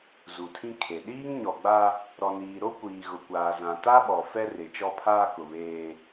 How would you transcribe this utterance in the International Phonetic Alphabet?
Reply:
z u˨ tʰ ĩ˦ kʰ e˨ ɗ iː˦ ŋ ɲ ɔ˨ ɡ͡b a˦ | ɾ ɔ˨ n iː˨ ɾ o˦ kʷ iː˨ ɣ ʊ˨ kʷ aː˨ z ã˨ t a˦ ɓ ɔ˨ f ɛ˦ r ɪ˨ t͡ʃ ɔ˦ pʰ aː˦ k ʊ˨ β eː˦

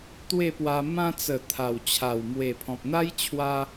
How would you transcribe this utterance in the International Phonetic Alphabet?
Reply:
t̪ w e˥˧ p w a˧ m ã˧ t͡s ə˨˩ t̪ʰ a˨˩ w t͡ɕʰ a˨˩ w m w e˨˩ pʰ ɔ̃˨ p̚ n̪ a˦ j t͡ɕʰ w a˦

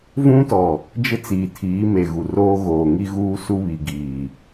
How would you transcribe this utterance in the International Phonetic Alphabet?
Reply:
v ũ˦ t ɔ˨ | d͡ʒ ɪ˦ t͡s iː˨ tʰ iː˨˦ m e˨ ɣ u˨ r oː˦ ɣ oː˨ ŋ i˦ ɣ uː˦ s u˦ β i˨ ɡ iː˨

